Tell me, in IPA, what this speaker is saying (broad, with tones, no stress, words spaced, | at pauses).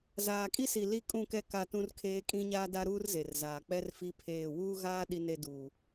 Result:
zaː˨kʼi˦si˨ li˦kʼũ˦˨kɛ˦ ka˦˨tũ˦rkʰeː˦ kʼĩ˦ɲaː˦da˦ɾuː˦r ze˨rzaː˨ k͡pɛ˦rfi˦pʰeː˦˨ wuː˦ɣaː˦ ɗi˦ne˦ duː˨